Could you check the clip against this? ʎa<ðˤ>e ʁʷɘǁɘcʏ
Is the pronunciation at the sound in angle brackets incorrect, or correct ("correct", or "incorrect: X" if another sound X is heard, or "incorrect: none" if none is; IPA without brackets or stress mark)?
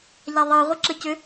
correct